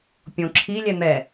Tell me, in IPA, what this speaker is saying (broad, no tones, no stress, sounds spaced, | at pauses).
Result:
pʲ õ ǁʰ i lʲ ɛ n̪ ɛ